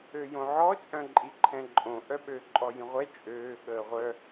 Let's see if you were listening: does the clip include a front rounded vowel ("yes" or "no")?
yes